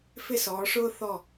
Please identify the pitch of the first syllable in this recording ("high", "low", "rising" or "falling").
falling